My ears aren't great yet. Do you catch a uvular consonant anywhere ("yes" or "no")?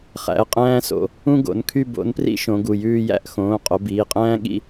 yes